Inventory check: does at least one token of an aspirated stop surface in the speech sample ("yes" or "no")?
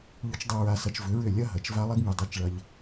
no